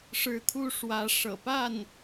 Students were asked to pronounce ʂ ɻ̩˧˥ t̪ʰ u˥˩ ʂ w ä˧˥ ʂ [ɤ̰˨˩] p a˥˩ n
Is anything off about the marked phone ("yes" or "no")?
no